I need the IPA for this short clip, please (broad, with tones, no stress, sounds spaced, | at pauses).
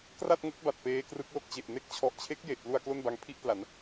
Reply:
k r a˥˩ t̚ ŋ o˦˥ k̚ b a˨˩ t̚ p eː˦˥ k r ɯ˦˥ k̚ l o˥˩ k̚ t͡ɕ e˨˩ ʔ n e˦˥ k̚ t͡ɕʰ ɔ˨˩ ʔ t͡ɕʰ e˦˥ k̚ j e˨˩ ʔ p l u˧ a̯ k l o˥˩ n b a˧ ŋ pʰ i˥˩ ʔ p l a˩˦ n